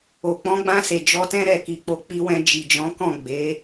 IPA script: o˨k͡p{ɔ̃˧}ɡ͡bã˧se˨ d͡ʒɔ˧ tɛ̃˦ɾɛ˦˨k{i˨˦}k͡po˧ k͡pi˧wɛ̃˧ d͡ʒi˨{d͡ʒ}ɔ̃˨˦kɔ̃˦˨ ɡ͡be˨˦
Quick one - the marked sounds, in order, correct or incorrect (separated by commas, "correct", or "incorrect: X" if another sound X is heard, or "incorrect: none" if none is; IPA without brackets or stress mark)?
incorrect: ɔ̃˨˦, correct, correct